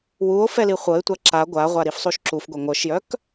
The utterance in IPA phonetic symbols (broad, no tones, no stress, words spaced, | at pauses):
wuo̯ fɛliχʷɤe̯tʷa ǁa ɡʷaʁʷa ɾifsˤuʃǁufɡʷɛ ŋʷœʃjœk